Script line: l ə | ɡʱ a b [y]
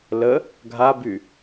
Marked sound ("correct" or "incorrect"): correct